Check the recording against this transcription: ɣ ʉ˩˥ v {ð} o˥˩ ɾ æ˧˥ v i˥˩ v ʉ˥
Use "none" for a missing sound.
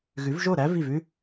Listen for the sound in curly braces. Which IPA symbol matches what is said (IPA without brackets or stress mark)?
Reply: ʒ